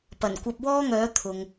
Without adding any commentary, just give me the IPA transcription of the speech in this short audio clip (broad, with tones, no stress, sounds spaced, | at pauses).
p ɐ˨˩ n kʷ ɐ˧ p̚ w ɔː˥ ŋ œː˨˥ t̪ʰ ʊ˨ ŋ